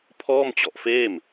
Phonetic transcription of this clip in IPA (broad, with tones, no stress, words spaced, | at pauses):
pʰɔː˥˩mt͡ɕɔ˨˩ʔfeː˥˩m